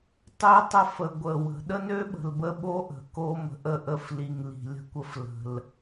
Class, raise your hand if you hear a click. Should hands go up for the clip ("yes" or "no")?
no